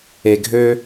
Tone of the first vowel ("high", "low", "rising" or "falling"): low